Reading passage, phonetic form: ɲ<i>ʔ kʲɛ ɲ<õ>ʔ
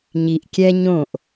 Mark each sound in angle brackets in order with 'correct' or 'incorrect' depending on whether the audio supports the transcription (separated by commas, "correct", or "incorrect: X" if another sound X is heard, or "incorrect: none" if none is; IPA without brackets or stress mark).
correct, correct